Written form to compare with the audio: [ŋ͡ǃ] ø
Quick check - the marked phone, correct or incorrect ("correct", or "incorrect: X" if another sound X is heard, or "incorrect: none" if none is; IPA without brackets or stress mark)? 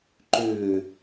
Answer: incorrect: ǃ